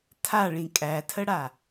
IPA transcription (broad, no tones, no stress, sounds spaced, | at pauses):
tʰ a ɭ ĩ kʼ æ tʰ ə ɽ a